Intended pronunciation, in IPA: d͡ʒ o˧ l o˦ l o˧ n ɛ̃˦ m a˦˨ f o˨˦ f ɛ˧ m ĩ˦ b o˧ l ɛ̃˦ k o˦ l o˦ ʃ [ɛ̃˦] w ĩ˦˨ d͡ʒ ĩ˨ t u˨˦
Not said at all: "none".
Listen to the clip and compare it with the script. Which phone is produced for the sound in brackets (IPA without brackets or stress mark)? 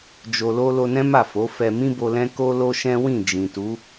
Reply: ɛ̃˦